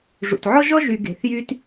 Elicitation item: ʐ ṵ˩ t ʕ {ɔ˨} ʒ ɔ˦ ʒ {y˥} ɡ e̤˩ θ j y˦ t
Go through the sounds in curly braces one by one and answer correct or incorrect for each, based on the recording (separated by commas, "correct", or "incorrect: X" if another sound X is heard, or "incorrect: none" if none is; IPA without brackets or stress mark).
incorrect: ɔ˦, incorrect: y˨